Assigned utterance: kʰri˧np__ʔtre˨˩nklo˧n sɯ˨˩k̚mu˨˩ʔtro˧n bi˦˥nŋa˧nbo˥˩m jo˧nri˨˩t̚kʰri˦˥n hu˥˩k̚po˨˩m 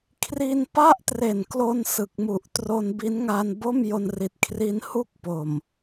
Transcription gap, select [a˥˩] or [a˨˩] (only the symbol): a˥˩